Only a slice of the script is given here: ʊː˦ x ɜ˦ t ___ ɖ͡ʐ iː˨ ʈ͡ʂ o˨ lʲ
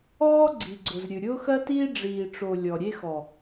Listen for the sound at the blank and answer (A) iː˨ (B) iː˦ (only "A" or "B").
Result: B